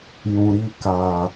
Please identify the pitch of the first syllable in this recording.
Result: low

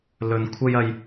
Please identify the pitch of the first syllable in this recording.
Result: low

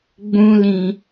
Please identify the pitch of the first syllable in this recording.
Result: high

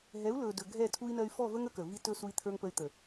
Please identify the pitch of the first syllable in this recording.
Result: rising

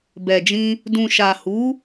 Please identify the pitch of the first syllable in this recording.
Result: low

